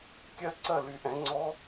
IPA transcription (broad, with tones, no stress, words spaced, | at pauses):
kʲɜ˥ ǀɜ˥˩ly˨˩˦ʔɛ̃˨˩˦ ŋ͡ǀɔ˧˥